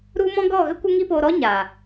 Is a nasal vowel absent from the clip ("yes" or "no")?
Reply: no